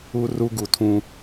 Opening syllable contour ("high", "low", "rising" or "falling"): high